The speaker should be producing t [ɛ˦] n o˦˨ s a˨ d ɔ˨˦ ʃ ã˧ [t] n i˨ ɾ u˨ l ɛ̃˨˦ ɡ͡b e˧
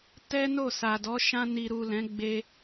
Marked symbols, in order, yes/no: yes, no

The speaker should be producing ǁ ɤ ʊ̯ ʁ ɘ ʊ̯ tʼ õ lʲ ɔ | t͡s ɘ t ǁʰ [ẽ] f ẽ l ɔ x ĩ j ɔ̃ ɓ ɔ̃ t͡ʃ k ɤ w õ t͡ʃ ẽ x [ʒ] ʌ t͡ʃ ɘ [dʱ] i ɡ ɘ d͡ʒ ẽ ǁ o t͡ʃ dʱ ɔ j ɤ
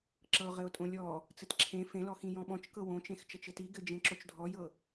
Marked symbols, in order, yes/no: yes, no, no

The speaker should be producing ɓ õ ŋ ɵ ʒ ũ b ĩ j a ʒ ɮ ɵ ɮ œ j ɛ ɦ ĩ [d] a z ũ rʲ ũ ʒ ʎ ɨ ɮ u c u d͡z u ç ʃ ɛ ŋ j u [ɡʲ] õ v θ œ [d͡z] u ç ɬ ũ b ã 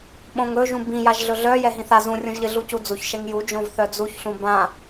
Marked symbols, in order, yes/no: no, no, yes

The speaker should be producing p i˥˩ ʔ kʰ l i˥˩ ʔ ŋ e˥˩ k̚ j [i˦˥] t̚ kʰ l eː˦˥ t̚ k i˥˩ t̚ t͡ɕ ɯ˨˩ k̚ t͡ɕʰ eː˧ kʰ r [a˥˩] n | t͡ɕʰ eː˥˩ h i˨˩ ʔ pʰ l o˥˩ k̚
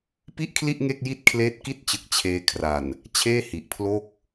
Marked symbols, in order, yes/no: no, no

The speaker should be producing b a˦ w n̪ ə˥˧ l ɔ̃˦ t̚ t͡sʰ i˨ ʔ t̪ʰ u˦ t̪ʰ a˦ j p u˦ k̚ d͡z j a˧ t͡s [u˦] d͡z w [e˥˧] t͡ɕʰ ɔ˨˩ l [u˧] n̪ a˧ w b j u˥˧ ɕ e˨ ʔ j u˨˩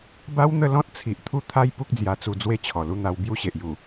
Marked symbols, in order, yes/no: no, no, yes

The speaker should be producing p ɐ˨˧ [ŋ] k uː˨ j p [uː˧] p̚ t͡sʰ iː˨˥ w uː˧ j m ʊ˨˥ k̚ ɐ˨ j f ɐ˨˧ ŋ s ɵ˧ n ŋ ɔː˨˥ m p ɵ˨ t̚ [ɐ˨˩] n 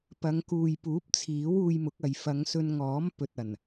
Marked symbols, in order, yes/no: yes, no, yes

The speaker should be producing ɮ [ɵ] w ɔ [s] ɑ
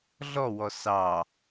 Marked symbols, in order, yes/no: no, yes

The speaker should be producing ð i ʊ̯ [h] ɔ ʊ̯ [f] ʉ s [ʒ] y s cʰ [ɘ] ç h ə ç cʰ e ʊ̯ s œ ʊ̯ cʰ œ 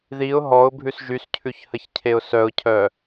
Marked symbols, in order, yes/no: no, no, yes, no

